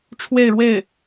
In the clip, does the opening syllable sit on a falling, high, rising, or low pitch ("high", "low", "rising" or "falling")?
falling